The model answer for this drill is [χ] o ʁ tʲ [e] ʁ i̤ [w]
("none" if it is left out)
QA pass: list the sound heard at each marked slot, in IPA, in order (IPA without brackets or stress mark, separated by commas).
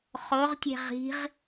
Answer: χ, e̤, ʁ